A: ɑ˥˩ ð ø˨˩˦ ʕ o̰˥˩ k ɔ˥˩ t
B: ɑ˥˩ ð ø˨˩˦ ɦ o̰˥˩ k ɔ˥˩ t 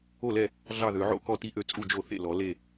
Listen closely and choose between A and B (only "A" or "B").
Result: A